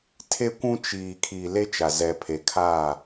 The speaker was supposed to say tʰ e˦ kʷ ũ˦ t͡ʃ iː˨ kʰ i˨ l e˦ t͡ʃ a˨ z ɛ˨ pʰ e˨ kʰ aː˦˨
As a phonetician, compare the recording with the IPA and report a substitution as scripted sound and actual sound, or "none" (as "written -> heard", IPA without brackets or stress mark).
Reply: none